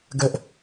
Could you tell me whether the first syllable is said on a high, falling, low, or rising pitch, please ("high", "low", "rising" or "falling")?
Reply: high